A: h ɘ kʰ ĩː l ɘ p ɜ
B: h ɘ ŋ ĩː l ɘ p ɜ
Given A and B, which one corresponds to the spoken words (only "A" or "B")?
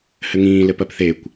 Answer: B